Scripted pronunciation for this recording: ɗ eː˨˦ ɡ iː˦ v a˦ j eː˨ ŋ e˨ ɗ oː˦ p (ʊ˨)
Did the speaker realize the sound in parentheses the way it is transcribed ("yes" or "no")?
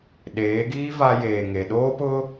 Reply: no